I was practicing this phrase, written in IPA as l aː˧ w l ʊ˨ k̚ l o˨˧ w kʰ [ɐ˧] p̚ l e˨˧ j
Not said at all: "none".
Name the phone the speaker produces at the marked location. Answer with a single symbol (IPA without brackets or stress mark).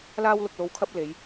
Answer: ɐ˧